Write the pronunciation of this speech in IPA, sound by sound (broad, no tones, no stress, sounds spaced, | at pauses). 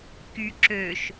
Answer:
k y ǁ ø ʃ